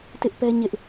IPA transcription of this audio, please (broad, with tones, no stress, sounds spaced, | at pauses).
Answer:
t ɪ˦ ʔ p ɛ˦ ɲ ɪ˦ ʔ